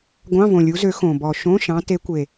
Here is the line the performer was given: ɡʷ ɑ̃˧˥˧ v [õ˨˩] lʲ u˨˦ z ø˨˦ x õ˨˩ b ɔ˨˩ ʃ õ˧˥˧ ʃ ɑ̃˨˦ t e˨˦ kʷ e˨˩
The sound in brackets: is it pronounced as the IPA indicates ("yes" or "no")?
yes